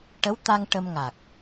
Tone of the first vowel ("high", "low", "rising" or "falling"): rising